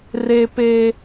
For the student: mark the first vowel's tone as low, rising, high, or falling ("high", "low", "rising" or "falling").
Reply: high